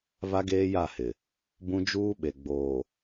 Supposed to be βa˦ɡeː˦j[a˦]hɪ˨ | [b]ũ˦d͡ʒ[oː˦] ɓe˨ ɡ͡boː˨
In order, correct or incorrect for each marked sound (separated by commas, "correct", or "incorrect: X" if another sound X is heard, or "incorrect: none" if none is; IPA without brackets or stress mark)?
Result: incorrect: a˦˨, correct, incorrect: uː˦